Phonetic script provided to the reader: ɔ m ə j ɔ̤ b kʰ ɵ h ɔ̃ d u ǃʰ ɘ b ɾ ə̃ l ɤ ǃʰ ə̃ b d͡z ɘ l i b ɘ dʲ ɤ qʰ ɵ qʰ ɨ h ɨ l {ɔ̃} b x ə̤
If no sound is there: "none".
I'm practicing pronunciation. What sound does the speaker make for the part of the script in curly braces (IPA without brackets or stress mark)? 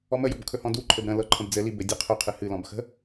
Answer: ɔ̃